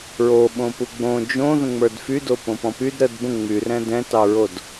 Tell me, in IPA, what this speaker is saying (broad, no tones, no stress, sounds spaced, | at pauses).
ɹ o ɓ õ p u ɡ͡b õ d͡ʒ õ ð ə̃ ŋ͡m ə˞ d f y d o p õ p ɔ̃ p y d ɾ ə d b ə̃ ŋ͡m y r ɛ̃ d ɛ̃ t ɑ ɹ o d